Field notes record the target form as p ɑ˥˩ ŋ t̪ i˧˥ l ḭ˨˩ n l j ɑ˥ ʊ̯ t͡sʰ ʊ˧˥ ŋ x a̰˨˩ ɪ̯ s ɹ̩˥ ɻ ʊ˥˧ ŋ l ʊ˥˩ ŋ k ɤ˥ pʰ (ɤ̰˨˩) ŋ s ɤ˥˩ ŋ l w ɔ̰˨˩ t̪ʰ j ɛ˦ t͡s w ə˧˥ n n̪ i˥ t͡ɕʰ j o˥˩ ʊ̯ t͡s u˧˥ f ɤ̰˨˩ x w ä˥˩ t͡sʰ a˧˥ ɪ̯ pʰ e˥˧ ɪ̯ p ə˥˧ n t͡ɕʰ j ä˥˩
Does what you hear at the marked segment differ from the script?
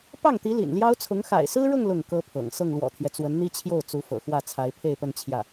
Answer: no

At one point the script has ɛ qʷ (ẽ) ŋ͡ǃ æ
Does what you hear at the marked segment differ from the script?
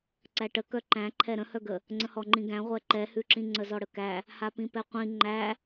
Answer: yes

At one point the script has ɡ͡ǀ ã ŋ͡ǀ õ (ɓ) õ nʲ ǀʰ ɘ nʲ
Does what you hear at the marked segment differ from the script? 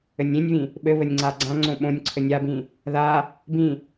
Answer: no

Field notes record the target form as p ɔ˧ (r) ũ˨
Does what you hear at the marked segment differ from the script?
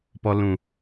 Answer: yes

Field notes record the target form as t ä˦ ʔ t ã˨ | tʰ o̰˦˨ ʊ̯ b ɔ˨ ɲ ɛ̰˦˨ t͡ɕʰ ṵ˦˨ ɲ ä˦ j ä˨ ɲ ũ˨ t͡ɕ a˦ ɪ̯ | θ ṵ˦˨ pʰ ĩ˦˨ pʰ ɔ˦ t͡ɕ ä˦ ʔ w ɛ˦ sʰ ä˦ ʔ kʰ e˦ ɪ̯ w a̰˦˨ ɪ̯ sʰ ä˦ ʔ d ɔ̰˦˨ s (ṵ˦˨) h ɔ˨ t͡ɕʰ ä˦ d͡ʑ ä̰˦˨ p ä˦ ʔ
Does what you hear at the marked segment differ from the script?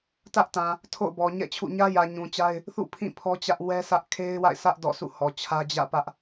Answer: no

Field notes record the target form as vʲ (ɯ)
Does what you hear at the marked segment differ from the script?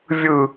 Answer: no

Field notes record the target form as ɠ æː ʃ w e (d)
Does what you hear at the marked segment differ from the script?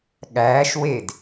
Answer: no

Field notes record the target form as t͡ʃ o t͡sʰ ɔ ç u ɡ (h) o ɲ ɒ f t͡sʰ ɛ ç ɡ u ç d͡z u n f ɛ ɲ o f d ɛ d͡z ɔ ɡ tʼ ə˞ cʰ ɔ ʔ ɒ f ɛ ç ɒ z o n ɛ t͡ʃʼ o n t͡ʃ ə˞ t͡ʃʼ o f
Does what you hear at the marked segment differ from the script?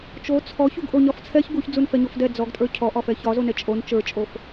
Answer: yes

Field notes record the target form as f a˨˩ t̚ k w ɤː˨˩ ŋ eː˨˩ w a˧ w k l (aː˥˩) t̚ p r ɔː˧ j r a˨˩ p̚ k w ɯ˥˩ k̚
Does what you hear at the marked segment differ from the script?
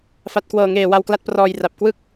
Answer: yes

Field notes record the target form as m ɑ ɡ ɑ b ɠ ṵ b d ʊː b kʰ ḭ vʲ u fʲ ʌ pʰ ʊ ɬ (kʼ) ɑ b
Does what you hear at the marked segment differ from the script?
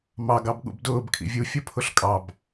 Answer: no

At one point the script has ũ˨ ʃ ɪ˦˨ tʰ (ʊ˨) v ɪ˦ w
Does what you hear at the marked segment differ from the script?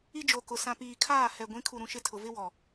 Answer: no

